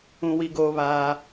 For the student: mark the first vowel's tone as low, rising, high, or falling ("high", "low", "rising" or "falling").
high